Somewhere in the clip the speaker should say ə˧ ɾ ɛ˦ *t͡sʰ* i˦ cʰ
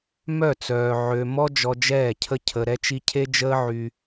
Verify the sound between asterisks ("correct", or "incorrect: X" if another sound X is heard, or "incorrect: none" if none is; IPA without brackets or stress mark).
incorrect: t͡ʃ